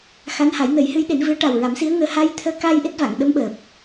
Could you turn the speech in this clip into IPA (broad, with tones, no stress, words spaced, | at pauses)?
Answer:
xa˧˥nha˨˩˦j nə˨˩˦jhɨ˧˥jɗe˨˩˦nvɨ˧˥ə̯ ʈa˨˩wɹa˨˩˦msi˧˥ə̯ŋəː˧ ha˧j t̪ʰəː˧˥ ka˧j ʔe˦˥t̚va˨˩˨ŋɗə˧˥mɓəː˨˩p̚